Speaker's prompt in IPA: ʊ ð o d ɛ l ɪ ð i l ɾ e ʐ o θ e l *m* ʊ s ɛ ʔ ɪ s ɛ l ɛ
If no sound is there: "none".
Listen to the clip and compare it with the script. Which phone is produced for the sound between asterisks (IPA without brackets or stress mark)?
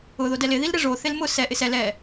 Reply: m